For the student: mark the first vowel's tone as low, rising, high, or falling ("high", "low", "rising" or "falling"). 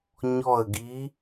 falling